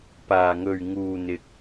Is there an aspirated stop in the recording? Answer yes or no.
no